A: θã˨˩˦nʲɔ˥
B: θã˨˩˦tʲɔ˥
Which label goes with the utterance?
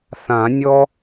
A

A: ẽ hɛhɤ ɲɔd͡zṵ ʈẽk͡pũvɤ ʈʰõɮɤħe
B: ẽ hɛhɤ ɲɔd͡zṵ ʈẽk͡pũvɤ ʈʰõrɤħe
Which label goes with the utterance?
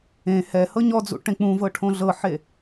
A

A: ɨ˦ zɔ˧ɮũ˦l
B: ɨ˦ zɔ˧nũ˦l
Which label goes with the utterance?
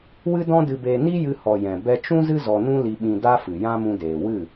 B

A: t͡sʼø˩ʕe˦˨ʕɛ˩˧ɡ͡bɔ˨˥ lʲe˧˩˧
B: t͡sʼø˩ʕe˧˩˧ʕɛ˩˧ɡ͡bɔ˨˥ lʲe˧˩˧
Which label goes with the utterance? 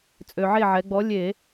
A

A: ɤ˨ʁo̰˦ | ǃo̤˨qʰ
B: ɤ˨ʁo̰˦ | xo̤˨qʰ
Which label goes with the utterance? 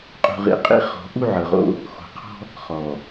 B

